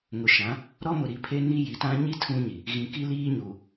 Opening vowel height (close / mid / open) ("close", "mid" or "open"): close